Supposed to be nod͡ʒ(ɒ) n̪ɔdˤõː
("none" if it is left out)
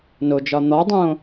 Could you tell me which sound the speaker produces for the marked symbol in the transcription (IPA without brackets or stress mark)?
ɒ